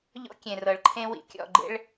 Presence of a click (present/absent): present